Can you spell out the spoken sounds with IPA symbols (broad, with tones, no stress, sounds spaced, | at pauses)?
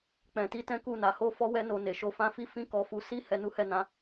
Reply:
k͡p ɛ̃˨ t i˧ t ɛ̃˦ k u˦˨ n a˧ h o˦ f ɔ˦ w ɛ˦ n o˧ n e˨ ʃ o˧ f ã˦ f i˦ f ĩ˦ k ɔ˧ f u˧ s i˦ h ɛ˧ n u˦ h ɛ˦˨ n ã˨˦